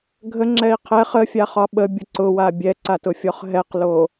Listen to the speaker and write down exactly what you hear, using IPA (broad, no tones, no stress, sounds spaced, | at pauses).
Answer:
ɡʱ ə ŋ͡ǁ ɛ i̯ qʰ ɛ χ ə fʲ a χ ɒ ɓ ə bʲ ʊ ǀ ʊ w a bʲ ɛ ǀ a t ʊ fʲ ɔ χ ɦ ɛ q l o